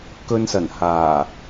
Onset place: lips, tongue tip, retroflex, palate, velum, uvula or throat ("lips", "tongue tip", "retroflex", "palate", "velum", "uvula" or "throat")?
velum